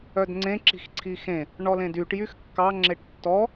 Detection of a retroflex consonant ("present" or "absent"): present